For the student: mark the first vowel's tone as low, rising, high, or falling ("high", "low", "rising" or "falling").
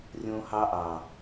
high